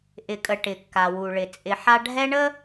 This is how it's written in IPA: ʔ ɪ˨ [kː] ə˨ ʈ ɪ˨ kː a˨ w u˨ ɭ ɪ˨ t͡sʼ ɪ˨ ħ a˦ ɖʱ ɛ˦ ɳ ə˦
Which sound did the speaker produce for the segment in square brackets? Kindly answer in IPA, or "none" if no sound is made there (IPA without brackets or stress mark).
kʼ